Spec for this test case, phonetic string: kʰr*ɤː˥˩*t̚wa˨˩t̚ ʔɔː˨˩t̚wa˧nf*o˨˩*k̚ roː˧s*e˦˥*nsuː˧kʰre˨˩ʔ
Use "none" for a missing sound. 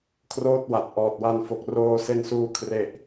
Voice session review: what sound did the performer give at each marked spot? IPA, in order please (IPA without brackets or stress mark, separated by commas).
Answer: oː˥˩, o˨˩, e˧